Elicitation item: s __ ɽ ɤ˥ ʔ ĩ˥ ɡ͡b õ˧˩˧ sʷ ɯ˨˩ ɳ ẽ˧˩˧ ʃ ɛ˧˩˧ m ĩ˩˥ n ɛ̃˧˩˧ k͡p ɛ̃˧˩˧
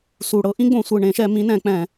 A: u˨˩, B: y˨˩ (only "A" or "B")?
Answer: A